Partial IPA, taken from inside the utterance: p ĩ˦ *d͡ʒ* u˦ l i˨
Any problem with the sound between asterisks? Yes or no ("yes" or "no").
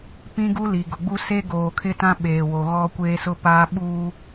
yes